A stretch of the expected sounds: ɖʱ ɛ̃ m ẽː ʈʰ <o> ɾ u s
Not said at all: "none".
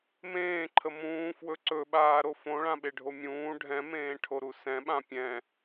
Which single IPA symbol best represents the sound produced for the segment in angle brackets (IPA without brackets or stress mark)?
o